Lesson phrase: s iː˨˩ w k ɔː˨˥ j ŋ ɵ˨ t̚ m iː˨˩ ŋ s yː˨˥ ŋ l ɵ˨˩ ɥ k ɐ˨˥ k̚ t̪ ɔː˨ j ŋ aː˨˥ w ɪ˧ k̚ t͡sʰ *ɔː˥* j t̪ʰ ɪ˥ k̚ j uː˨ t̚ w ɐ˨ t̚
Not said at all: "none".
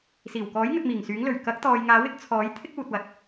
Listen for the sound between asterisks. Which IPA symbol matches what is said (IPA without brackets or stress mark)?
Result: ɔː˨˥